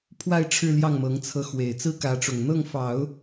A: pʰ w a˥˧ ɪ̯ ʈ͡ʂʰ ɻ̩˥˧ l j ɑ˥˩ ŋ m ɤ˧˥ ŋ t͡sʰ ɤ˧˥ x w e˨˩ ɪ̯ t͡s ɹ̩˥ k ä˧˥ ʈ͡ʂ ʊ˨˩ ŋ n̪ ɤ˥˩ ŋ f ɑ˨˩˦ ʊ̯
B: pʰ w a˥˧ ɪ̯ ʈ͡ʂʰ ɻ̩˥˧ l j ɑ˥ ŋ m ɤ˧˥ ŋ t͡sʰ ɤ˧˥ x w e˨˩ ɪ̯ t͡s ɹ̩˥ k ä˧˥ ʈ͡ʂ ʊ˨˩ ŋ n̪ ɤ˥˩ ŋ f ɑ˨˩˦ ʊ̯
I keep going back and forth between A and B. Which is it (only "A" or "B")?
A